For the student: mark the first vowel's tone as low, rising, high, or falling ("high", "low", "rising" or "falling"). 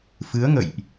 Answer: rising